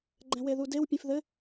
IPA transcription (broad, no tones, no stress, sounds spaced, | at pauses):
ɡ͡ǃ ɛ̃ w e ð u d e w pʲ ẽ f ð ɘ